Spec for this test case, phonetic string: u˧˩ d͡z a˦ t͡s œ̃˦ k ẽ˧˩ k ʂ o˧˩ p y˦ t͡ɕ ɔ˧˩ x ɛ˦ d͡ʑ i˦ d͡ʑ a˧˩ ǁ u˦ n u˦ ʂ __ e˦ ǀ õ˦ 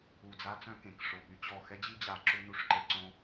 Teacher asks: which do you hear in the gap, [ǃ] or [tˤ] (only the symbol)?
ǃ